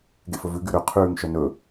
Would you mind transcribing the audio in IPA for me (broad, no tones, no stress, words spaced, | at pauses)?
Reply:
ɡḛfɵvʉ ɡyɾø qʰʉːŋ ʃœnɵ